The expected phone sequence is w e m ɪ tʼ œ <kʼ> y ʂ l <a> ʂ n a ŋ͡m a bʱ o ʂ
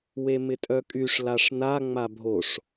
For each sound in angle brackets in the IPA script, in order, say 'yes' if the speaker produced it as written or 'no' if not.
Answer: yes, yes

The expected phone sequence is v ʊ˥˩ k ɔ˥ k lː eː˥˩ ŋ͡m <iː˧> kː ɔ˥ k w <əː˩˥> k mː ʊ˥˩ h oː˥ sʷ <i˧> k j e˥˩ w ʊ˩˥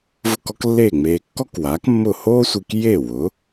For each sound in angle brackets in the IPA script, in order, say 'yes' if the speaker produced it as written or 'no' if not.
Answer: no, no, yes

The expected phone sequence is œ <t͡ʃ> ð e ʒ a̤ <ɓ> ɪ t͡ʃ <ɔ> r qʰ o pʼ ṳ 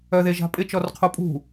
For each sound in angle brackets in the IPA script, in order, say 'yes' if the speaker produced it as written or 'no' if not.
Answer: no, no, yes

